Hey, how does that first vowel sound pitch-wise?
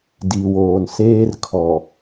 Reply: low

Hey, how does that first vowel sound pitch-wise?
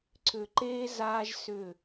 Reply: low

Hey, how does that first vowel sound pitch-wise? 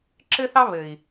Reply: high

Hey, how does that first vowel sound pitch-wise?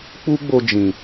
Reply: high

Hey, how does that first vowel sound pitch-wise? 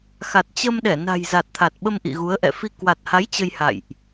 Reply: low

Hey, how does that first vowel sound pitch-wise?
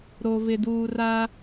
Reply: low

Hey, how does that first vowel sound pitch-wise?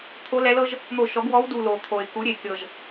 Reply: rising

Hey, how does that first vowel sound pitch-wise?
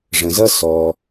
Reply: low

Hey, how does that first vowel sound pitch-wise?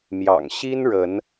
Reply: low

